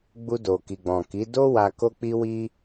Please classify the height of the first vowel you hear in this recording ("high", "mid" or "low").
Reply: high